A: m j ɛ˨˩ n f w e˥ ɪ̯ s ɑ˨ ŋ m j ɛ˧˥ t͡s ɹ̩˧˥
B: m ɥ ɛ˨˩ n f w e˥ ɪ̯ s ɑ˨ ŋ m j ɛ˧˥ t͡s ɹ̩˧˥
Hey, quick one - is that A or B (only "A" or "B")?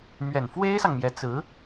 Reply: B